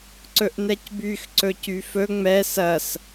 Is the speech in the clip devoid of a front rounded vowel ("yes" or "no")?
no